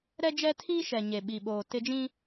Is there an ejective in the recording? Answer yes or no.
no